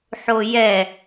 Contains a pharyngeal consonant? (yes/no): yes